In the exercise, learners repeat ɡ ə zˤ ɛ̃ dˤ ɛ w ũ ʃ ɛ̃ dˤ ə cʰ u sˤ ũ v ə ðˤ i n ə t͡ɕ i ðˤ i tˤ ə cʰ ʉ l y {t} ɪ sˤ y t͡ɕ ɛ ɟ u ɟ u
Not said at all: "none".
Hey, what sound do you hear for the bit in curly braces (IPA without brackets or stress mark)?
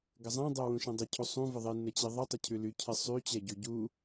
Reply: cʰ